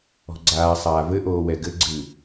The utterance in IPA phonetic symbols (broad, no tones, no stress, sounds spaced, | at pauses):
ɔ̤ ɡ͡ǀ aː sˤ aː v ɘ ʔ oː w ɛ ɡ ɘ ɡ͡ǀ ɨː